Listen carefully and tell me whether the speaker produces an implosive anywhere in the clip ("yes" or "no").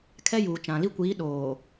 yes